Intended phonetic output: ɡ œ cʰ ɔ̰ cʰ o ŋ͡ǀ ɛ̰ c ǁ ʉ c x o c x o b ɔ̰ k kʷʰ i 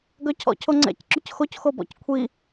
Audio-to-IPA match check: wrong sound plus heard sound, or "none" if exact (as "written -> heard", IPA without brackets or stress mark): k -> c